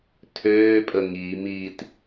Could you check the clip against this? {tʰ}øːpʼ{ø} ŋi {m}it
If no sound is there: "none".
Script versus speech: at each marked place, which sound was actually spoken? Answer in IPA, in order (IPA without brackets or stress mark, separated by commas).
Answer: tʰ, ə, m